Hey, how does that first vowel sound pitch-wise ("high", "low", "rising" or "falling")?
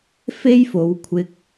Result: high